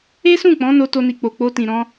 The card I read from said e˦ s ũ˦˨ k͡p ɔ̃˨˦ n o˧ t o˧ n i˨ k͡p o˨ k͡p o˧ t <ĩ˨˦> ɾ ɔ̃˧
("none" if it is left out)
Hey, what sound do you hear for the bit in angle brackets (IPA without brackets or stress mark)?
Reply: ĩ˨